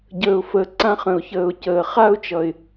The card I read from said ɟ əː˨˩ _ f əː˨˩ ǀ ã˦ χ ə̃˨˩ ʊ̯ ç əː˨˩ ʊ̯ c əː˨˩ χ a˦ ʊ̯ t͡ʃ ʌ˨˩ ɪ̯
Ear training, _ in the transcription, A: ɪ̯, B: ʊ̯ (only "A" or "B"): B